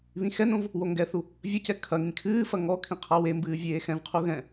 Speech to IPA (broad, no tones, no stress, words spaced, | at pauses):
βĩxɛnõv | woŋɡɛθu | vʲɐcɛ kʰɐŋĩ kʰɨːfɐ ŋɔ kʰĩqʰawembɨː vʲeːxɛ̃vqʰu ɣɛ̃